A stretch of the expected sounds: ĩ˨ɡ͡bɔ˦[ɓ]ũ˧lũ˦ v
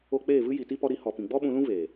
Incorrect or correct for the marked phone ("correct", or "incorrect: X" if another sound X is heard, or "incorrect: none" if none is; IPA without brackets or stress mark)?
correct